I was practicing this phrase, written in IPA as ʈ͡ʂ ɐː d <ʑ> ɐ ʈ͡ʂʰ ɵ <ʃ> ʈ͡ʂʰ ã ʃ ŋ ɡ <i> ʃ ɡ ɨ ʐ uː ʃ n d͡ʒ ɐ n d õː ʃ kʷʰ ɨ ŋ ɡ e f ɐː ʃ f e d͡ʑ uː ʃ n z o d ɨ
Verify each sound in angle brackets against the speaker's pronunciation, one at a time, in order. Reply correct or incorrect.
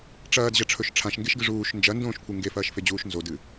correct, correct, incorrect

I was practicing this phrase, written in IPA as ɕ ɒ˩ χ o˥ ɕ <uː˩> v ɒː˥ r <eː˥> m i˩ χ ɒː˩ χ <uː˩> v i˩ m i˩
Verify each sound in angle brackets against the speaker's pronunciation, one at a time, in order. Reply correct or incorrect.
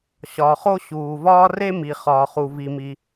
correct, incorrect, incorrect

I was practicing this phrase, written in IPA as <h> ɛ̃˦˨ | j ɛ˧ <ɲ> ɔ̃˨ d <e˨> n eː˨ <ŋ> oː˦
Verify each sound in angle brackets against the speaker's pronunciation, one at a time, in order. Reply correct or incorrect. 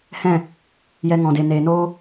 correct, incorrect, correct, incorrect

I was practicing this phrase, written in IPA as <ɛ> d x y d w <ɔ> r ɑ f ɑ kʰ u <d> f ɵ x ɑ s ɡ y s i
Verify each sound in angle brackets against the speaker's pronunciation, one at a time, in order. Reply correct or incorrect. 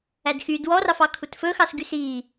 incorrect, correct, incorrect

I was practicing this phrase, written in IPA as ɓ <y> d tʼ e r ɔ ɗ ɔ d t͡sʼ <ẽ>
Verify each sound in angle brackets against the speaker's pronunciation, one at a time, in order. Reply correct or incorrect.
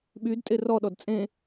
correct, correct

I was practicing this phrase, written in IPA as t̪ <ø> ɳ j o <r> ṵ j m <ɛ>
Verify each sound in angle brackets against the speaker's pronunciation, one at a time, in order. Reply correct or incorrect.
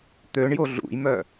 correct, incorrect, incorrect

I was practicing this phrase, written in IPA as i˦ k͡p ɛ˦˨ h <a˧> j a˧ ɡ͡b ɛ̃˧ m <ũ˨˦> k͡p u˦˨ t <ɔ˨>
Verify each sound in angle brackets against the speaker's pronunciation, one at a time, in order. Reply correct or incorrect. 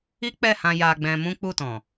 incorrect, incorrect, incorrect

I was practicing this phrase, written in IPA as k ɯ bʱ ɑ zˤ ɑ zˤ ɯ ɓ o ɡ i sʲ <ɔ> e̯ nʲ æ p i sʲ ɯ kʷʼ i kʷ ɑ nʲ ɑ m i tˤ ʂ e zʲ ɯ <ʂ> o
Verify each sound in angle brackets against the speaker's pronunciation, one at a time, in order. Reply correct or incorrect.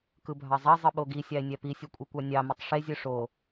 incorrect, correct

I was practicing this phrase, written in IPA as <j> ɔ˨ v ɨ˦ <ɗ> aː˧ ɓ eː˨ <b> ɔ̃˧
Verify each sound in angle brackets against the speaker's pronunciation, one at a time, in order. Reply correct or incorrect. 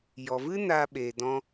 correct, incorrect, incorrect

